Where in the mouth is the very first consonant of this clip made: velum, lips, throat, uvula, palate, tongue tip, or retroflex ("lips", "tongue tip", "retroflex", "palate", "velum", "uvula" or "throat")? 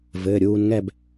lips